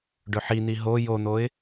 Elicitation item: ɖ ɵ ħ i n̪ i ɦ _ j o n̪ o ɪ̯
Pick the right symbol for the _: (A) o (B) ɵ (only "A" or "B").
A